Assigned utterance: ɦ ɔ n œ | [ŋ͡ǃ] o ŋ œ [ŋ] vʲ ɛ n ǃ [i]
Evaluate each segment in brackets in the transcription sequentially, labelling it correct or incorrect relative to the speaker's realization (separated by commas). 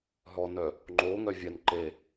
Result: correct, incorrect, incorrect